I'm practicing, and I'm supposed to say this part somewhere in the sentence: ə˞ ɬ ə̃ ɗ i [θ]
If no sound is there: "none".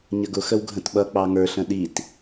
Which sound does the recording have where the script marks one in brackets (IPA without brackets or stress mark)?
t